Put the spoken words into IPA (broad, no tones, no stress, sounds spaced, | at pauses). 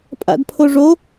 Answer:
pʼ a̰ d pʰ o ʐ o